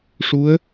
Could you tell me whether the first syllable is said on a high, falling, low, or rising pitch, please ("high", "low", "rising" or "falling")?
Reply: rising